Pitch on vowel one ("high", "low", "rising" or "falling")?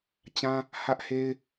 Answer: high